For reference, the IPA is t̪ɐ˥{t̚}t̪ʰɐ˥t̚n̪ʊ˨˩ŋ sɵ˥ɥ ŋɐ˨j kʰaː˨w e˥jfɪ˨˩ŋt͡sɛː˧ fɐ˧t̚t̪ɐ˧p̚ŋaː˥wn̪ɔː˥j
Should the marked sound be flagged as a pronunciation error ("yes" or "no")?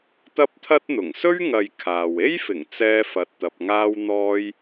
yes